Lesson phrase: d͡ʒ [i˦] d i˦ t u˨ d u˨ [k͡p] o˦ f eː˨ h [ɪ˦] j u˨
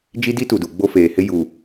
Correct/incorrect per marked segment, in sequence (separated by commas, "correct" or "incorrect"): correct, incorrect, correct